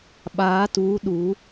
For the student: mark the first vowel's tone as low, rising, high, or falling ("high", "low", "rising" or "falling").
rising